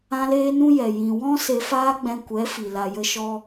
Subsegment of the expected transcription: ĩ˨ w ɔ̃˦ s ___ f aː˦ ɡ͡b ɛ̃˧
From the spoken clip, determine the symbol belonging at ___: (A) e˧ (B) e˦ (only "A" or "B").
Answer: A